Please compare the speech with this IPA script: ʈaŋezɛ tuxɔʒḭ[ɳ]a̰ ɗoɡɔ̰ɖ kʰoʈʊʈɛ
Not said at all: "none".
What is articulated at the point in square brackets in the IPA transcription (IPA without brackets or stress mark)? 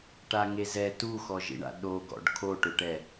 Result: ɳ